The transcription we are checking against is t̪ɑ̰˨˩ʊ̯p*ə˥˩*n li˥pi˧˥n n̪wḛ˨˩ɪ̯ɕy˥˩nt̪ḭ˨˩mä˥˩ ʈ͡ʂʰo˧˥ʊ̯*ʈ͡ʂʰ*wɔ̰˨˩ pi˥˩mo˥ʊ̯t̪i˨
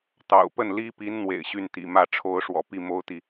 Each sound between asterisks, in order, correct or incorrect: correct, incorrect: ʂ

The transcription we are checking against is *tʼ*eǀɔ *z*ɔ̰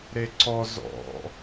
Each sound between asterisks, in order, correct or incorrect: incorrect: ɾ, correct

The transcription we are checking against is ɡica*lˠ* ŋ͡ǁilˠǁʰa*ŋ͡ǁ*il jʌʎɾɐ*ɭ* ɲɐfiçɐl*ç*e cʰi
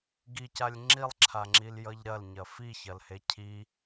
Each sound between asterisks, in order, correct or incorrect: incorrect: lʲ, correct, incorrect: l, incorrect: h

